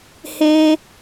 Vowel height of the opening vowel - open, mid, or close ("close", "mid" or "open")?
mid